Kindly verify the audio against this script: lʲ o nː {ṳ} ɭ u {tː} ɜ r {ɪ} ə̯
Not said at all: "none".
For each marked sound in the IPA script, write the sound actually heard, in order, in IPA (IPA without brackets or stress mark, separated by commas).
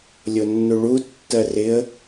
u, tː, ɪ